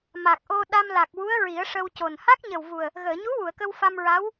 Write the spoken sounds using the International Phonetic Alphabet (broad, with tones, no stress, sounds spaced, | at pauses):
m a˨˩ k̚ ʔ o˧ ɗ a˧ m l a˨˩ k̚ w u˧˥ ə̯ ɹ i˨˩˦ ə̯ ʂ ə˧ w c o˨˩ n h a˦˥ k̚ ɲ ə˨˩ w v u˨˩ ə̯ | ɣ əː˨˩˨ ɲ u˧˥ w u˨˩˨ ə̯ k ə˧ w f a˧ m ɹ a˧˥ w